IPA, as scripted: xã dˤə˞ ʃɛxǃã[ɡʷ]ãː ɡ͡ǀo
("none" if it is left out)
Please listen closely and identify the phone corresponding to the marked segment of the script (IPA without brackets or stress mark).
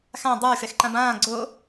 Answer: b